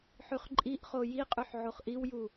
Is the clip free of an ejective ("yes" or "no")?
no